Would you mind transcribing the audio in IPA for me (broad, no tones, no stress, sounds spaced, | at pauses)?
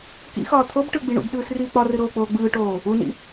k ḭ x ɒː t̪ʰ o b ʈ ɯ ɡ͡b i ɳ ṵ b ɗ ɯː s r iː k͡p ɒ r ɯ ɾ oː k͡p oː ɡ͡b ɯː ʈ oː | u n ḭ